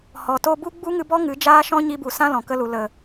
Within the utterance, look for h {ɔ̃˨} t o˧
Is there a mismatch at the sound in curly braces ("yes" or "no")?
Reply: yes